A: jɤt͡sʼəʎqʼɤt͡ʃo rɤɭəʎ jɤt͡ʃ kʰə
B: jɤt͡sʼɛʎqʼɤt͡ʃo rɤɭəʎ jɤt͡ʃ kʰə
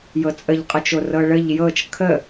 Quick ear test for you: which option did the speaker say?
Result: A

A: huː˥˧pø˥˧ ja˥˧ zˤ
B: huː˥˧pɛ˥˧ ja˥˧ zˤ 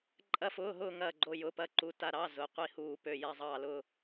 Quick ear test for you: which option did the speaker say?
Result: A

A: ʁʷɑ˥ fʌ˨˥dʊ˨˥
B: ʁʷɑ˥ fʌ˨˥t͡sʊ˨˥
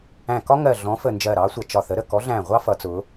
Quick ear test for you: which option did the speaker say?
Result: B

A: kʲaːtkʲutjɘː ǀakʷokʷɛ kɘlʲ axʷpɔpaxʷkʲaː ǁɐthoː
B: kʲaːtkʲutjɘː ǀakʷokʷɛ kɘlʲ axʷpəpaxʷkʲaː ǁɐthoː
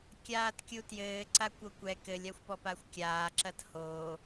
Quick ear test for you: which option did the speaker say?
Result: A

